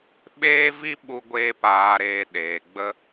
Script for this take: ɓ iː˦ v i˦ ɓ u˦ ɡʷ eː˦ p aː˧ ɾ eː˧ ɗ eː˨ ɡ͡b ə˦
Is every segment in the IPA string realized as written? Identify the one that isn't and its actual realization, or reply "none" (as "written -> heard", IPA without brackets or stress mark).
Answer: iː˦ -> eː˦